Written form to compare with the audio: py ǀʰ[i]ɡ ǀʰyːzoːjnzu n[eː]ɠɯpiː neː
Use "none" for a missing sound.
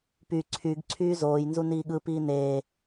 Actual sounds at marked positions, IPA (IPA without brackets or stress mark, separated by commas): y, iː